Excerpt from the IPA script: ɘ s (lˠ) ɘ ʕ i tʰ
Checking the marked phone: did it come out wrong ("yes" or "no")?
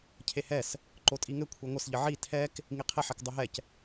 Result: yes